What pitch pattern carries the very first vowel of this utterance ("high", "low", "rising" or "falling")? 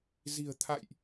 low